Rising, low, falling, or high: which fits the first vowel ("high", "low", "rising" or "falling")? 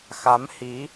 rising